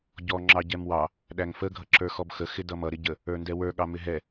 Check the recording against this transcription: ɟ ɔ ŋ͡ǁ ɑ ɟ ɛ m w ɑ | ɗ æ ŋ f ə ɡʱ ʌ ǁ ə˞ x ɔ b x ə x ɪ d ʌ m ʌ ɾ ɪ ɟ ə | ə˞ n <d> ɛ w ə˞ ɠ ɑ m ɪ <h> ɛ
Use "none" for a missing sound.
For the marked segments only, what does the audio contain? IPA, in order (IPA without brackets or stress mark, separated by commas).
d, ɦ